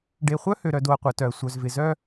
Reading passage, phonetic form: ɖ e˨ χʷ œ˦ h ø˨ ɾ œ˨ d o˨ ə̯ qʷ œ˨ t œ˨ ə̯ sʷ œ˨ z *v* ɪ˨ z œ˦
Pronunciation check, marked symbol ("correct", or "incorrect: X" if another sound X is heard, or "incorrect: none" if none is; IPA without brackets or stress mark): correct